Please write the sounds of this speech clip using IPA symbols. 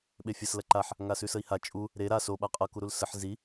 ɓefʲɐs lɐǃaħ | ŋasʉsəi̯ha t͡ʃʼu | ɾe ɾa so ɓaqʼɤ kuɾulsəħ zi

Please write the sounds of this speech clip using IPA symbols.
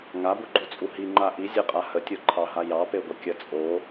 ŋabuɡ͡ǃut͡sʼu ɦiŋ͡ǃa ʔizʲeqʼa hətʲoǃʰɑɦa jɑpeɡʷə kʲə t͡sʼo

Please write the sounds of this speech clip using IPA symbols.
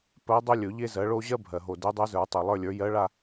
pɜ˧˥ dˤɵ˥ lʲɵ˨˩˦ʎe˥zɜ˩˥ɭo˥ ʑɜ˥ bʱɜ˨˩ ɦo˨˩de˧˥dˤɜ˧˥zə˞˨˩˦ tˤe˨˩lˠə˞˥˧lʲə˞˩˥ jɜ˧˥ɭa˥˧

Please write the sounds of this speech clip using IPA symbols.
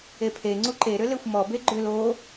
epʰe ŋ͡ǀuǃeɾʏ lexʷmɔ beɡ͡ǃʏl o

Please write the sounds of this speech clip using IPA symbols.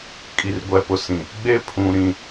kʼi˨rɡʷɛ˨pʊ˨sĩ˨ | ɡ͡be˦pʰũ˨ɾĩ˦˨

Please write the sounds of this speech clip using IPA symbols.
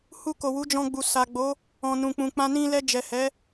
hu˧ko˨wu˨˦ d͡ʒɔ̃˧ɡ͡bu˨sa˨ɡ͡bo˨˦ | ɔ̃˨nũ˨k͡pũ˨k͡pã˧ nĩ˧lɛ˧ d͡ʒɛ˨hɛ˨˦

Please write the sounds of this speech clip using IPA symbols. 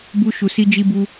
bu˦ʃu˧ si˦d͡ʒi˦bu˦

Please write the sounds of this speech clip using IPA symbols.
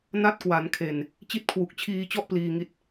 na˦˥t̚kwa˩˦nkʰe˨˩n | t͡ɕi˦˥t̚kʰwu˨˩k̚ t͡ɕʰiː˧t͡ɕɔ˥˩ʔ pliː˧ŋi˦˥t̚

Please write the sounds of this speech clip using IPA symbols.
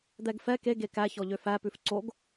d̪ɛɡfɛ ke ɡekæ çɔʎøfæ pʉfǀoɡ

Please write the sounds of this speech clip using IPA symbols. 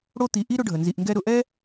ɽo˦t̪i˨ ʔi˥ ɾʊ˦ɖʱə˩nzi˨ʔŋɡɛ˦ ɾʊ˨ʔɛ˥

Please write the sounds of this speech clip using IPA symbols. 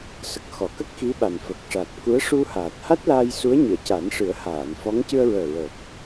sə˨˩k̚xɔ˨˩˨kə˦˥k̚ xi˧˥ɓa˨˩nfə˨˩k̚ ʂa˨˩t̚ku˧˥ə̯ ʂu˧haː˨˩t̚ha˦˥t̚laː˧j su˧˥ə̯ɲɨ˨˩˨ə̯ca˨˩˦n ʂɨ˨˩˦ə̯haː˨˩˨nfɔ˧˥ŋ cɨ˧ə̯ɹəː˨˩ɹəː˨˩p̚

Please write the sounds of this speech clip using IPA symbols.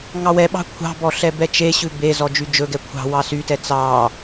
ŋɑwɛɓɑ̤ kʷʰɑ̤bɔ ɬɛbɛt͡ʃeɕʉ be zɔd͡ʒyd͡ʒɵɡɛ kʷʰɑ̤wɑ sytɛ t͡sɑ

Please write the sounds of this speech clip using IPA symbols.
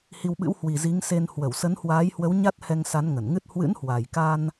hi˧wɓɨ̰˧˥w hwi˨˩zi˨˦ŋse˧n hwə˧˩wsə˨˦nhwaː˨˦jhwə˨˦w ɲa˦˥t̚hɛ˧ŋsa˨˦n ŋə˧˩nŋɨ˦˥t̚ hwɨ̰˧˥nhwa˨˩jka˧n

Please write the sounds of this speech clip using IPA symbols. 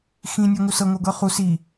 xĩ nʲɔŋusɤ ŋoɡɤχu si

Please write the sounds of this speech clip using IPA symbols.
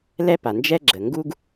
lɛ˦pa˨ nd͡ʒɛ˦ɡ͡ǁə˨ ŋɡu˦ɡ

